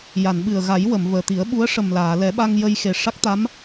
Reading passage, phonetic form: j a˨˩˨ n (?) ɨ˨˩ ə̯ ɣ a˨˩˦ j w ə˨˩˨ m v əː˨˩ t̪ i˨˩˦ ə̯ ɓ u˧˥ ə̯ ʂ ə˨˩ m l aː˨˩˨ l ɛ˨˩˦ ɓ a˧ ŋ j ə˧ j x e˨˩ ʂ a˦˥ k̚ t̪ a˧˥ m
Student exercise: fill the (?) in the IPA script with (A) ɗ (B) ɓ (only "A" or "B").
B